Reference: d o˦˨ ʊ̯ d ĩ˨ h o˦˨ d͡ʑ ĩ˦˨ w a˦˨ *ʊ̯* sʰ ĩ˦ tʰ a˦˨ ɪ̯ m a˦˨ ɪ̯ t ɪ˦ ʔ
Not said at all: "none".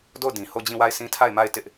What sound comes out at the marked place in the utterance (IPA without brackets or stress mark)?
ɪ̯